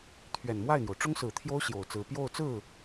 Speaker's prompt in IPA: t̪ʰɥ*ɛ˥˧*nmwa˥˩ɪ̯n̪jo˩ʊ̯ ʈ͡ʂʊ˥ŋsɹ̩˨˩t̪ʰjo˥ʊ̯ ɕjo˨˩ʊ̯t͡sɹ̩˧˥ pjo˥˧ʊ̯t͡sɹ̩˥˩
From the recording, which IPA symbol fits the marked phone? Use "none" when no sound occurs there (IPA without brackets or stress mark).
ɛ˨˩